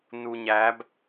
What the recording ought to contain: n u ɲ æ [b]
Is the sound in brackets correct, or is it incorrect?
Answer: correct